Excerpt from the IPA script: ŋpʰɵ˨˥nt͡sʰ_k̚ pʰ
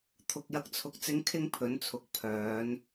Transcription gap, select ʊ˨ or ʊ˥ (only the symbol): ʊ˨